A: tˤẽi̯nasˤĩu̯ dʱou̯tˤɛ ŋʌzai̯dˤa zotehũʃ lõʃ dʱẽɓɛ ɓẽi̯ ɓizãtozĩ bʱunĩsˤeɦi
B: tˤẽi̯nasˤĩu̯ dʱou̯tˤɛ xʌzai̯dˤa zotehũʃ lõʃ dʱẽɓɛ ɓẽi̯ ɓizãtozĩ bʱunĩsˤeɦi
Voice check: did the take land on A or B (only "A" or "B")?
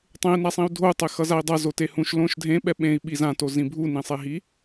B